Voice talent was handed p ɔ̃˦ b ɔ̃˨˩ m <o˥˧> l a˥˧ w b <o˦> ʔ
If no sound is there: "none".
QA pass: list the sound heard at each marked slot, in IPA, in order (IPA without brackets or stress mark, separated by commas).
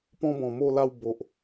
o˥˧, o˨